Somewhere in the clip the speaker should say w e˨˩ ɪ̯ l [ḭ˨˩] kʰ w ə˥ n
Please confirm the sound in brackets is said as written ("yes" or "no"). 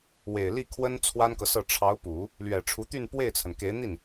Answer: no